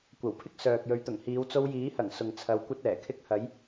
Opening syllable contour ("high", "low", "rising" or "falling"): low